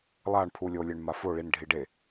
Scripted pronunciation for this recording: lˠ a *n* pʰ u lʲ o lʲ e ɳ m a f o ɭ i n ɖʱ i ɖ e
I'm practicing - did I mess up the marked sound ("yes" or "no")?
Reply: yes